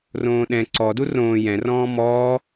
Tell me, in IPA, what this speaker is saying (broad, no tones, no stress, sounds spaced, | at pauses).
r õː ɗ ɛ̃ ǀ ɔ d u r õː j ɛ̃ r ɔ̃ː m ɔː